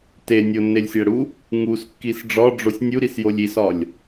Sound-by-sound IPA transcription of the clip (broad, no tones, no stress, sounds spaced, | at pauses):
t e nʲ o nː e lʲ sʲ æ ɽ u | ŋ u s kː i s ɖ͡ʐ ɒ ɖ͡ʐ o sʲ nʲ u ɾ i s j o lʲ i s ɒ lʲ